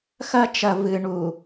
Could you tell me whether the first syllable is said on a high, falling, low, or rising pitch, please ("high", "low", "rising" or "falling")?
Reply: high